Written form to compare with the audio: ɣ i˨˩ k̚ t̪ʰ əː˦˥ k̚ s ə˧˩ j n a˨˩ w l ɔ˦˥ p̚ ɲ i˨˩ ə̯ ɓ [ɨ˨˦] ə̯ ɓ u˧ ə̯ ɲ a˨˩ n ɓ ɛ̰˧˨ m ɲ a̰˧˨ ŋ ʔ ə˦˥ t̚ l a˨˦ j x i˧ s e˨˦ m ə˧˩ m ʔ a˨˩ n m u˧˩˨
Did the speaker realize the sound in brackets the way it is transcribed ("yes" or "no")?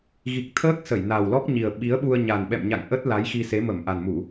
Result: no